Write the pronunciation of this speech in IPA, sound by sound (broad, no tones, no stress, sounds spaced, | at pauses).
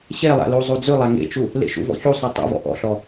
ɕ e lˠ a̰ l u zˤ u d͡z ʉ lˠ a ŋ ḛ t͡ʃ u | l ḛ ʃ ṵ v ɔ̰ ç u sˤ ʉ tˤ ṵ v ɔ̰ ʔ ɔ̰ ɬ ɔ